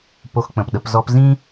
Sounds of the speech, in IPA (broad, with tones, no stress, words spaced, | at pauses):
po˧xk͡pə̃˨pɗə˧p zɔ˧pzĩ˦